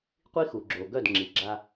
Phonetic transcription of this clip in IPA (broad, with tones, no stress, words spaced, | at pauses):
qʷi˦xu˨ɡ͡ǁo˨ɡœ˦˨d ŋ͡ǁi˨ɡ͡ǁa˦